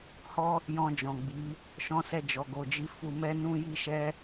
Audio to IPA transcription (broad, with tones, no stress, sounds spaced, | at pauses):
h ɔ˦ | j ɔ̃˧ d͡ʒ ɔ̃˨ ɡ͡b i˨˦ | ʃ ɔ̃˧ s ɛ˧ d͡ʒ ɔ˨ ɡ o˨ d͡ʒ i˨˦ f u˧ m ɛ˦ n ũ˦ j i˦ ʃ ɛ˦